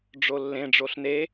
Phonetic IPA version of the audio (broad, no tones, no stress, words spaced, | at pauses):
ɖ͡ʐolːẽ ɖ͡ʐoɬne